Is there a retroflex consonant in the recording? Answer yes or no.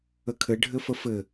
yes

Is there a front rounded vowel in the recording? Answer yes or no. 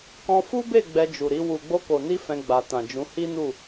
no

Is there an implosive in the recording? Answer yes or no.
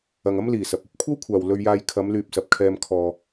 no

